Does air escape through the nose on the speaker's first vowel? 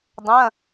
yes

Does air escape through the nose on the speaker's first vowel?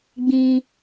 yes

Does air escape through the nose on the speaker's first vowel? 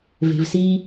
no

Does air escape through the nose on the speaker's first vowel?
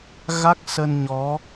no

